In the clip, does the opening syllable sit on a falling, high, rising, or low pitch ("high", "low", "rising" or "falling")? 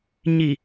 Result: low